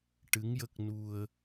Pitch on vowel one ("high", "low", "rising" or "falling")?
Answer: rising